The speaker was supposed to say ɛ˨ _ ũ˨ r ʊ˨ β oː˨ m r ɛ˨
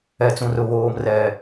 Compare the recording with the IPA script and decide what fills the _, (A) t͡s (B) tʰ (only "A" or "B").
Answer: A